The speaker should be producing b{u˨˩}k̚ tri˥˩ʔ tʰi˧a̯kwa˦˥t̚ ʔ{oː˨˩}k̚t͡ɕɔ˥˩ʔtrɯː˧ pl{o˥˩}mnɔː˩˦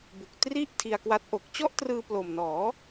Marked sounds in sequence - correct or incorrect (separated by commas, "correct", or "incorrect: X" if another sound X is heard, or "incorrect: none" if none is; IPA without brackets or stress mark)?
correct, incorrect: o˨˩, incorrect: o˨˩